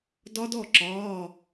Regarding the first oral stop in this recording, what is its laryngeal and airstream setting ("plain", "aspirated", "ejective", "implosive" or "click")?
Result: plain